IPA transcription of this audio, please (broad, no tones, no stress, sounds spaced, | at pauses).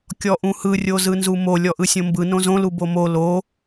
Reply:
kʲ ɔ ʔ ũ h ɯ rʲ o z ɯ n z u m o lʲ ɔ ʔ ɯ sʲ õ m b ɯ n õ z õ l u b o m o l o